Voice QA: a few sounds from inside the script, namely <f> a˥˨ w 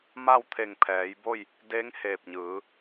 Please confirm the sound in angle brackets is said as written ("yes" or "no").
no